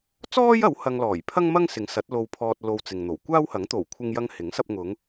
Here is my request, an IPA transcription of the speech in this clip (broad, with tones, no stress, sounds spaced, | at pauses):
t͡s ɔː˥ j ɐ˨˥ w h ɐ˧ ŋ l ɔː˨˩ j pʰ ɐ˥ ŋ m ɐ˥ ŋ s ɪ˨˥ ŋ s ɐ˨˥ t̚ l o˧ w pʰ ɔː˧ t̚ l o˧ w t͡s ɪ˨ ŋ n̪ o˨˩ w kʷ aː˥ w h ɐ˨˥ ŋ t̪ o˨˩ w kʷʰ ɪ˧ ŋ j ɐ˧ ŋ h ɪ˨˥ ŋ s ɐ˧ p̚ ŋ ʊ˨˧ ŋ